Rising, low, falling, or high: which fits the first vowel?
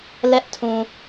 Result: high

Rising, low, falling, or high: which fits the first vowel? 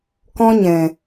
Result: high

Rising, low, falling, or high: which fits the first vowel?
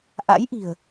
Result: rising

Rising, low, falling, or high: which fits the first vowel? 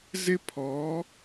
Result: high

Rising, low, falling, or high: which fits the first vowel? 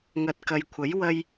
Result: low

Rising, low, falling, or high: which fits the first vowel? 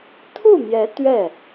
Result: falling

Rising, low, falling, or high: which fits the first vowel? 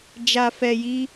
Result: low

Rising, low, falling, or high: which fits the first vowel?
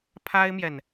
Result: high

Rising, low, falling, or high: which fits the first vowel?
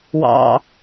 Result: low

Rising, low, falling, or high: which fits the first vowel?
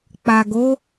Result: low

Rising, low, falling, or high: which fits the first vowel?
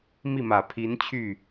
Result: falling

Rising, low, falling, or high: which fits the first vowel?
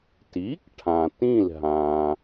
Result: rising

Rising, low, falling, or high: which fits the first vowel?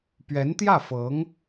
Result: rising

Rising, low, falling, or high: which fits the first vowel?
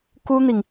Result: high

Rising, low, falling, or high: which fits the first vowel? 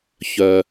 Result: low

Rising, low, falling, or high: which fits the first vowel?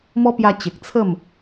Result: high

